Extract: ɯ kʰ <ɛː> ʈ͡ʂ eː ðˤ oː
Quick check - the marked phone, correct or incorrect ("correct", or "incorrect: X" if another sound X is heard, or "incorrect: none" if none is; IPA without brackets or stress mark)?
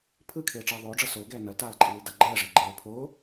incorrect: eː